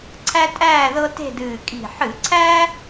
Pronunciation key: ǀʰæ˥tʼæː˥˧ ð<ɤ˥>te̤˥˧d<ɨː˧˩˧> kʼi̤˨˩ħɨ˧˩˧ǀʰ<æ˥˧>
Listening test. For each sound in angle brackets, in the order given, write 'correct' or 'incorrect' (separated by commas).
correct, incorrect, incorrect